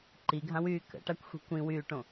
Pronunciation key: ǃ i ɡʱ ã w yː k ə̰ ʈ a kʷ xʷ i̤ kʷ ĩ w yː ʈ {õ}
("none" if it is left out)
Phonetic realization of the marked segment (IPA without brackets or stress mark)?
õ